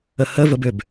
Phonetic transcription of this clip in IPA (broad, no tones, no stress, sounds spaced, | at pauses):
ə h ə v ə b ʏ b